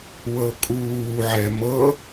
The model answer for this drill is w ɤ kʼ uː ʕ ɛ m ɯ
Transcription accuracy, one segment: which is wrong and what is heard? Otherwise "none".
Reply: ɯ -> ɤ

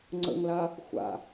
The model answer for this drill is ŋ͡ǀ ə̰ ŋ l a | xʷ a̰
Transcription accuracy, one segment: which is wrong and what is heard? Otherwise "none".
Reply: none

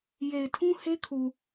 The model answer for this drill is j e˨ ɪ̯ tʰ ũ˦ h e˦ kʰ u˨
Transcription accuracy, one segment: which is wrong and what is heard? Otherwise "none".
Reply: none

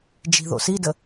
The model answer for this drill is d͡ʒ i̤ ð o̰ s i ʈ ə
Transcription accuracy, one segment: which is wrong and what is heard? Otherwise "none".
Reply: ʈ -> d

